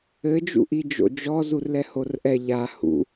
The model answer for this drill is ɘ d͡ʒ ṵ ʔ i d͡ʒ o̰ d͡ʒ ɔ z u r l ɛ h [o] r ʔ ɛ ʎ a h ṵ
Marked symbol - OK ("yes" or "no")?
yes